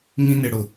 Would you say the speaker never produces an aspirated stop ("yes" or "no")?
yes